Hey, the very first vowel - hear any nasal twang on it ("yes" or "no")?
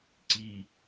no